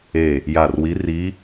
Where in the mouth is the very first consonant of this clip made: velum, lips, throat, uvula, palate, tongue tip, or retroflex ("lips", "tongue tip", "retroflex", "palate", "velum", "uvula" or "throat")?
palate